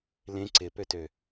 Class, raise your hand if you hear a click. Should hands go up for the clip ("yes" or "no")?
yes